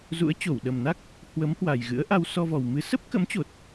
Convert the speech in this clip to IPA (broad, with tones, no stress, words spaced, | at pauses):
zṵ˧˥ə̯t͡ɕo˧˩wɗə˨˩mna˦˥k̚ | hwə˨˦mhwa˨˩j ɣɨ̰˧˥ə̯ʔa˧w sɔ˧vɔ˨˩wmɨ˨˦ sə˦˥p̚kə̰˧˥mt͡ɕo˨˩t̚